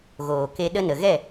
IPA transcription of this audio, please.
ɣoː˨ke˧ ɗə˦nə˨ ɣɛ˦˨

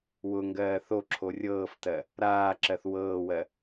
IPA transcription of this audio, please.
wʊ ŋɡɜːθoǁʰo rʲɤːftɜ | ɾaːǁɜθ wɤːwɜ

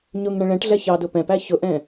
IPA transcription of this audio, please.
ɲʊŋɳə̃ ɭɛ̃ʈɮɛ çɑdʊ pɛ̃pæ çʊʔɛ̃

